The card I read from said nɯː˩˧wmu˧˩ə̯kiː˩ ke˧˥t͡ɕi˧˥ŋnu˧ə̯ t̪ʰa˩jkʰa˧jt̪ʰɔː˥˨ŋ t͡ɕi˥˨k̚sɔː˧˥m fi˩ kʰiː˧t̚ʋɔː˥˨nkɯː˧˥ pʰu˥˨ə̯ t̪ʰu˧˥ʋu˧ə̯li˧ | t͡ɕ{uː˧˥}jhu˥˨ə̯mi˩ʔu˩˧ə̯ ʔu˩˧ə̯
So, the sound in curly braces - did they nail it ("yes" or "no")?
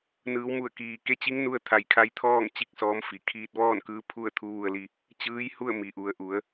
no